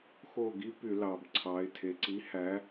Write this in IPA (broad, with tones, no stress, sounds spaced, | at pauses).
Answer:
x o˦˨ ɡ i˦˥ p y˧˩˧ l ɑ˩ b ǀʰ ɑ˩˧ ɪ̯ tʰ e˩ ǀ i˨˥ h æ˨˥